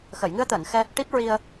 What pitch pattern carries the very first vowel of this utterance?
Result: low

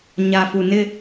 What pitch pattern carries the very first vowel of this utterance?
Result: low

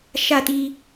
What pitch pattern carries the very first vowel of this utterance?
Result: falling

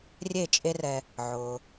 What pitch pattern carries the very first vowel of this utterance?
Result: falling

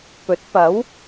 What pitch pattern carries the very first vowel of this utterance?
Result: rising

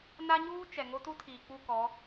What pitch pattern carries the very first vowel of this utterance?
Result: high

